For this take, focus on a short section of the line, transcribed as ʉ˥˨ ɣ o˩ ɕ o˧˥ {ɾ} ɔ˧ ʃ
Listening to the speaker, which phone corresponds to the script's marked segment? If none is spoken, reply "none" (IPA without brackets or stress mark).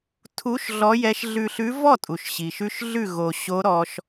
ɾ